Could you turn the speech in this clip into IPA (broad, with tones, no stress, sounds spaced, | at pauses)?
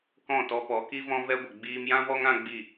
k ɔ̃˦˨ t ɔ˧ p ɔ˨˦ k i˦ v ɔ̃˦ v ɛ˦ ɡʷ ə˨ ɡ͡b iː˧ m j ã˦ v ɔ˦ ŋ ã˦ ɡ͡b i˦˨